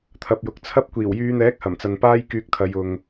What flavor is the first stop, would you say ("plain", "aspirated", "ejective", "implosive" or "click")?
aspirated